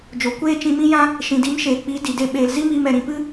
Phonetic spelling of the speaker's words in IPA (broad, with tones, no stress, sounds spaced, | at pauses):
d͡ʒ o˨ kʷ eː˦ t͡ʃ ĩ˧ m ĩ˦ j ã˦ | ʃ ĩ˨ d i˨˦ m ʃ eː˨ k͡p i˨˦ d i˨ d e˦ ɓ eː˧ l z i˦ m iː˧ m ɛ˨ ɾ ĩ˨ p ɨ˦